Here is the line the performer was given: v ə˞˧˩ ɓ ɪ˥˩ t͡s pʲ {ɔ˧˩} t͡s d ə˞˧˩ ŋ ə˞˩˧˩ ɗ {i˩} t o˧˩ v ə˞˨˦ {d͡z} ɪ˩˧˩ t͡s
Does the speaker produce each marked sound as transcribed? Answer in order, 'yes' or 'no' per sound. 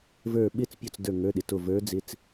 yes, no, yes

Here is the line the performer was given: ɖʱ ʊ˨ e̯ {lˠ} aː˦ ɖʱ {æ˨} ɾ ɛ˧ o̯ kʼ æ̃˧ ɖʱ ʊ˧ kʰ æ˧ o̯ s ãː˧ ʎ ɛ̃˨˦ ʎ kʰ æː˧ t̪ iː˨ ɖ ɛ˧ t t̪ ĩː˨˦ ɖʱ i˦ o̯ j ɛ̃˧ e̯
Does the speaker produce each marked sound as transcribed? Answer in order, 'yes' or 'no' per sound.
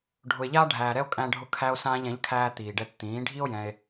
no, no

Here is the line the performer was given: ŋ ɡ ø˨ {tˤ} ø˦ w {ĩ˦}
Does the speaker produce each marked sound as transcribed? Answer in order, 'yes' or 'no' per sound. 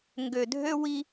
no, no

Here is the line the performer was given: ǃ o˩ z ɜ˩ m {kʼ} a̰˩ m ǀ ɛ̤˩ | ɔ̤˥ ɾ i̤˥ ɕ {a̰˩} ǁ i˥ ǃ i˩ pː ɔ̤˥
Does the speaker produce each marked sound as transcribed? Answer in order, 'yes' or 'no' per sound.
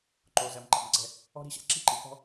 no, no

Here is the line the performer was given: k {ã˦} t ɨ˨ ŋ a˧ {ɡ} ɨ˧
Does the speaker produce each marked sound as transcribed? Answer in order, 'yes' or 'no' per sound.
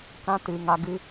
yes, yes

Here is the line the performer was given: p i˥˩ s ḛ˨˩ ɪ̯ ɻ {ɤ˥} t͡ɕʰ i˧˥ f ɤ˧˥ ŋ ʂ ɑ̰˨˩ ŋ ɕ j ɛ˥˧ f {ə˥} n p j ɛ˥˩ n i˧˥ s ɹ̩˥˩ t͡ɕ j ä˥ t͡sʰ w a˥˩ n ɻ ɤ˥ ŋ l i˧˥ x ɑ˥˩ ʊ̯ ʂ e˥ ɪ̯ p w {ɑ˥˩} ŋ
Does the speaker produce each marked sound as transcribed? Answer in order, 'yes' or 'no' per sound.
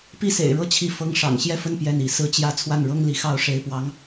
no, no, no

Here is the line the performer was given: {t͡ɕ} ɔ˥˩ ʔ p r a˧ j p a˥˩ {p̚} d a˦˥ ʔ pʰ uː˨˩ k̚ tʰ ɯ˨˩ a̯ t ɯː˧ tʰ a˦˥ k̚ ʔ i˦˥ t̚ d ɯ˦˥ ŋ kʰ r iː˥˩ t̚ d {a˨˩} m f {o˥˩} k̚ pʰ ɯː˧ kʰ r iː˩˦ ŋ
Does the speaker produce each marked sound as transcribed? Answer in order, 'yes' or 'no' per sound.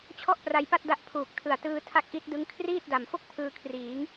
no, no, yes, yes

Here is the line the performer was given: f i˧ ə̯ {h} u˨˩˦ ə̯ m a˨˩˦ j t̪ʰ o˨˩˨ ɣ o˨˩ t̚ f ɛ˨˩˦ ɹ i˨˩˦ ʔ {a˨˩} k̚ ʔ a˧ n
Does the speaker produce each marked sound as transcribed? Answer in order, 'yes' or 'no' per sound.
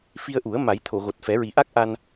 no, no

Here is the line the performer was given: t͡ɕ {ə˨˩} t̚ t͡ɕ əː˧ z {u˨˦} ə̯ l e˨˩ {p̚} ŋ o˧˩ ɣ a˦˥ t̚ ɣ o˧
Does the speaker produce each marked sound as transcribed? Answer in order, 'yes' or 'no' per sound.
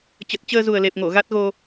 yes, no, yes

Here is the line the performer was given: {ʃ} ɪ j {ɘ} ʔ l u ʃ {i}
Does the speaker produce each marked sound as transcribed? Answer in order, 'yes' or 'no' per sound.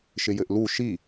yes, yes, yes

